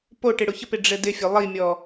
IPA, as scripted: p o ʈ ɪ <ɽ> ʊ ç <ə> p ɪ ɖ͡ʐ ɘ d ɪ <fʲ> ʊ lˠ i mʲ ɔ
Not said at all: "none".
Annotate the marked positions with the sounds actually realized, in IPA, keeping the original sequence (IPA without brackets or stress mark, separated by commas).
ɽ, ə, fʲ